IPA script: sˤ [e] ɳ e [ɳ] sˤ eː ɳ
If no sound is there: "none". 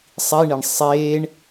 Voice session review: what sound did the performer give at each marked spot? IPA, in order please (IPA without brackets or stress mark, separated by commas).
i, ɳ